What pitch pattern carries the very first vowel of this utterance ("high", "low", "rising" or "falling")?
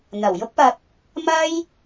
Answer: low